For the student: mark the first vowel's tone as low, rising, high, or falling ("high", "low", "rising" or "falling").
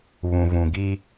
low